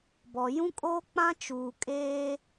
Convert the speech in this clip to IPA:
b ɔ˨ j ũ˦ kʼ oː˦ k͡p ã˦ t͡ʃ uː˨ kʼ eː˦

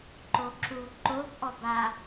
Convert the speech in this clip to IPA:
ǃ o ǁ u ǃ o b ʔ ɔ b a

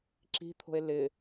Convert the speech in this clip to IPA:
ǁ i̤ t̪ʰ o̤ e̯ l ɪ

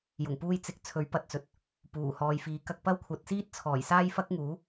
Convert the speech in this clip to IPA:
j ʊ˨˩ ŋ p uː˧ j t͡s ɪ˨˥ k̚ t͡sʰ ɵ˨˥ ɥ p ɐ˨ t̚ t͡s ɵ˨ t̚ | p uː˨˩ h ɔː˨ j f iː˨˥ k ɐ˧ k̚ p ɐ˥ w kʷʰ ɐ˨˥ t̚ s iː˥ t̚ t͡sʰ ɔː˨˩ j s aː˥ j f ɐ˥ k̚ ŋ uː˨˥

